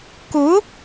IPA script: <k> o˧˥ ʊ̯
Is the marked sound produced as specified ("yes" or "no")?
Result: yes